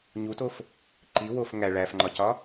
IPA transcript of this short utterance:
ɲutof | ǃi wof ŋæ ɭæfŋ͡ǃɒcɒ

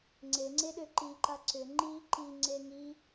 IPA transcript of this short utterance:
ŋ͡ǀeŋ͡ǀeɗø ǃiǃa ǀʏ ŋ͡ǃi ǃiŋ͡ǀe ŋi

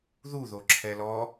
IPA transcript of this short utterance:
ðuðoǁʰɛ lɔ

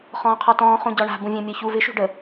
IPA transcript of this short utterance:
χɔ̃ːqʰɔtɔ̃ː χũɟɔɳa̤ bũvʲãmʲɒçu vɪ ʃṳɖə

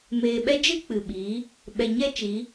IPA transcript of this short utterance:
meː˨ɓɛ˧ d͡ʒɨ˦k͡pɨ˨ɓiː˨˦ | ɓɛ˨ɲɛ˦t͡ʃi˨˦

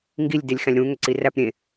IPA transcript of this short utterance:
ŋɡilʲ delʲxæ̃lʲɾũ ŋʏǀiræp ɾʲẽ

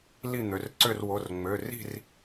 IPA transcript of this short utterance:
li˥˨n̪ø˩˧˩rǀø˥˨r wo˩˧˩rŋ͡mø˩˧˩ri̤˥˨r

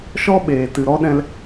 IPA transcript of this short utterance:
ʃɔ˦ɓeː˨tɨ˨ ɾɔ˦ɗɛ̃˧l

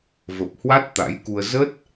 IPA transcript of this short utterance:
və˨˩p̚hwa˦˥t̚ t̪a̰˧˥jku˧ə̯ zə˦˥t̚

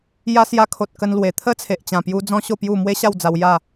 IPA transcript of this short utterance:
ja˧sja˧kʰo˨t̚ kə˧nlwe˨˩ t̪ʰə˦t͡sʰe˨ʔt͡ɕã˨˩pju˧ d͡zɔ̃˦ɕo˥˧pju˥˧ mwe˦ ɕa˥˧wd͡za˧w ja˥˧

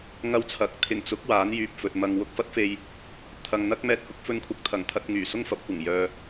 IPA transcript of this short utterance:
ŋɐ˧wt͡sʰɐ˨˥k̚ t̪ʰɪ˨˩ŋt͡sʊ˨˥k̚ waː˨˥njyː˨p̚ fɵ˨t̚ mɐ˨ŋwʊ˧k̚fɐ˥t̚fe˧j | t̪ʰɐ˨ŋn̪ɐ˥k̚mɛː˧t̚hʊ˨˥k̚ fɵ˧nkʷʰɐ˨k̚t̪ʰɐ˨˩ŋ t̪ʰɐ˧t̚ŋyː˨˩sʊ˥ŋfɐ˨˥p̚ kʷɐ˨˩ŋjœː˨

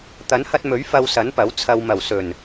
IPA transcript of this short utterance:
t̪ɐ˨˥nhɐ˧t̚mɵ˨˥ɥ fɐ˧wsɐ˨˥npɐ˨˥w t͡sʰɐ˨wmɐ˨˩wsɵ˨˩n

